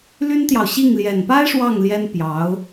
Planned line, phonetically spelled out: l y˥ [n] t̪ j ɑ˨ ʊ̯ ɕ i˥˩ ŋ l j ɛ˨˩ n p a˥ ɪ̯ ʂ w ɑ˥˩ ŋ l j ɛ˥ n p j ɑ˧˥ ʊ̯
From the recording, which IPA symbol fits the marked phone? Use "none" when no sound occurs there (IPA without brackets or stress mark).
n